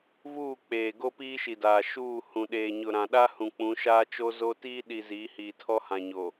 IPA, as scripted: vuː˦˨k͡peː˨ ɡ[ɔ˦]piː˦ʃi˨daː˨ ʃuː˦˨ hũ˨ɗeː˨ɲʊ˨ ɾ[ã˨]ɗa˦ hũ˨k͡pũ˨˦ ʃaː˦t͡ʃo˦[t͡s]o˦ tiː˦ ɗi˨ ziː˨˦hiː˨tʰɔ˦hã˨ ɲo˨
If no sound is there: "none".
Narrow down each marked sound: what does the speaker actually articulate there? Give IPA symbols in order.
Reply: o˦, ã˨, z

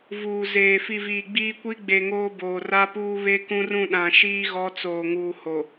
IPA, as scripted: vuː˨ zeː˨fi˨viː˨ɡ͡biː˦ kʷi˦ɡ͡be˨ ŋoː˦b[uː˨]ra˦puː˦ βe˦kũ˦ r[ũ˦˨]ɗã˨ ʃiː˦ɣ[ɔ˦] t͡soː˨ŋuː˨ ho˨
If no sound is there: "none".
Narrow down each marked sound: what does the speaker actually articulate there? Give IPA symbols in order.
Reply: oː˨, ũ˦˨, ɔ˨˦

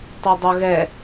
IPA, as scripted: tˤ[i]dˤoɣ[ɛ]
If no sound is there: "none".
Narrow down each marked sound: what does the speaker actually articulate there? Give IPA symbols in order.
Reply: i, ɛ

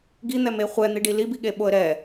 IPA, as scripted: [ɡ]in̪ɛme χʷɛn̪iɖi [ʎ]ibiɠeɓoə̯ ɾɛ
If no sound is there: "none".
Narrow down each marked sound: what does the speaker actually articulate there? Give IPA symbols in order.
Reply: ɡ, l

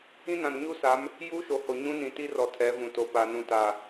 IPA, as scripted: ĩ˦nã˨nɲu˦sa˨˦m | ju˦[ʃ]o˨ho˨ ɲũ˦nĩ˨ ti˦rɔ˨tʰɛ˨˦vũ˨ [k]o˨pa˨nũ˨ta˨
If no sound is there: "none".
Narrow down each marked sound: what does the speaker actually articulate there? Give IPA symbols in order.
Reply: ʃ, t

